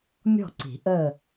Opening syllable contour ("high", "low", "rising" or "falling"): falling